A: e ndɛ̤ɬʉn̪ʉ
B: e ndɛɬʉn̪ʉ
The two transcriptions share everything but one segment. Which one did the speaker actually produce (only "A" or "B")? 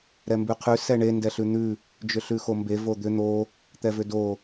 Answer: B